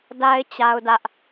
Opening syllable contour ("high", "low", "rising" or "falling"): high